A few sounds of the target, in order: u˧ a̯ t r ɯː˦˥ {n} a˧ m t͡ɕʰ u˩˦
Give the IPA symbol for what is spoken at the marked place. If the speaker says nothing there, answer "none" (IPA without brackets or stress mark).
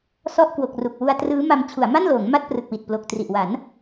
m